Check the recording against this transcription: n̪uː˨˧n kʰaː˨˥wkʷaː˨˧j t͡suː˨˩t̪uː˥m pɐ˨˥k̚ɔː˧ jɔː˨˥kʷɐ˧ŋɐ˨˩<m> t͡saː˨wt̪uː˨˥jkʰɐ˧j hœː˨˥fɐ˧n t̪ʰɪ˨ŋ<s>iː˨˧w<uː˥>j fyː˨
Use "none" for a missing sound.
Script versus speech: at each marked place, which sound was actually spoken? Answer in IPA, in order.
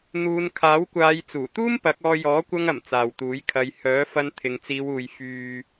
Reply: m, t͡s, uː˨

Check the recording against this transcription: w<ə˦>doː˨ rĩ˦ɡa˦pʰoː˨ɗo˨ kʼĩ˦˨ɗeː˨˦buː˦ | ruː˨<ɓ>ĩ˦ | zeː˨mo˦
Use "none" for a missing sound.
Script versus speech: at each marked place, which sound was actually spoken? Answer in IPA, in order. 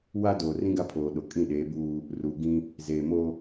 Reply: a˦, ɡ

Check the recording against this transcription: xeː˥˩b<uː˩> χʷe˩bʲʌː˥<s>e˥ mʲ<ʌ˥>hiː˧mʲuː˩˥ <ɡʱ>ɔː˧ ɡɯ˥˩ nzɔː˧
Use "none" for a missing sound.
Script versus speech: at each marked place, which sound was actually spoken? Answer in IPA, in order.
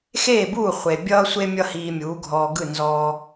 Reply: uː˥˩, sʷ, ʌ˥, ɡʱ

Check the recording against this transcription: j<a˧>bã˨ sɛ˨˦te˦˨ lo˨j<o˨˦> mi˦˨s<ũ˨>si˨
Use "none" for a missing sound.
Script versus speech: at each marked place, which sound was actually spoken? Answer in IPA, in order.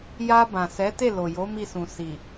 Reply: a˧, o˨˦, ũ˨

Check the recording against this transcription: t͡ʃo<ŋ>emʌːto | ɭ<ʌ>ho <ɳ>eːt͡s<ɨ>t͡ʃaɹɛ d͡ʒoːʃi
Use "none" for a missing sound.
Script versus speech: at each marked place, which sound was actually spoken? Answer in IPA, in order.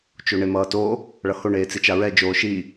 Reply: ɳ, ʌ, ɳ, i

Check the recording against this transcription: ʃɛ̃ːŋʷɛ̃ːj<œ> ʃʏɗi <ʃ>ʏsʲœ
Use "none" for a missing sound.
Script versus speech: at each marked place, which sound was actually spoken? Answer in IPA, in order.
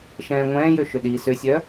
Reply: ø, s

